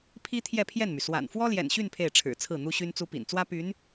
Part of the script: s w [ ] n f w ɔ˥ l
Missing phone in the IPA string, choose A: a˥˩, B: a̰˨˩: B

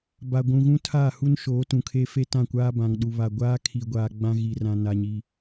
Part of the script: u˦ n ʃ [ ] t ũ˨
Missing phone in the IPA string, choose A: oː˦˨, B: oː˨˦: B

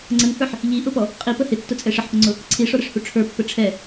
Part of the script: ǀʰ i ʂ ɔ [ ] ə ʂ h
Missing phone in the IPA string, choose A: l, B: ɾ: B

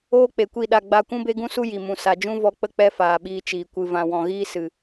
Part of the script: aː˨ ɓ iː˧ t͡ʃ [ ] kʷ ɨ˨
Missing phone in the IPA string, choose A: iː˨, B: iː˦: A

